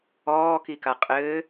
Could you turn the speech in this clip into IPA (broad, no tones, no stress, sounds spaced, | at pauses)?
ɔː k i k a qʼ ɘː